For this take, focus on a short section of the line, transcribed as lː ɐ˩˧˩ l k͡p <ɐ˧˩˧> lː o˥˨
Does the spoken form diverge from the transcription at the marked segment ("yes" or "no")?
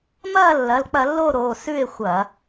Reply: no